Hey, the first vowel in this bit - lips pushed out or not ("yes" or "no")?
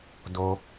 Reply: yes